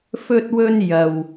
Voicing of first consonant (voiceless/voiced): voiceless